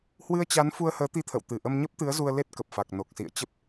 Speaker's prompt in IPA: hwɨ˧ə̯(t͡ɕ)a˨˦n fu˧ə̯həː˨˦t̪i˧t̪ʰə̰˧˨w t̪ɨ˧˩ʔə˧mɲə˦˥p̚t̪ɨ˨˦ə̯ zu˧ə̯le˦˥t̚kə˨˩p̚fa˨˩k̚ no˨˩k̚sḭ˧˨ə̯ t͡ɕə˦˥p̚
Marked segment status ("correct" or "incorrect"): correct